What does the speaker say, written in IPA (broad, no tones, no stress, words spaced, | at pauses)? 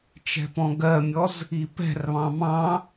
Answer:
t͡ʃɛ̤pɔ̃ɡɜmʲɔz | ipɛ̤rβɑ̃ mɑ̃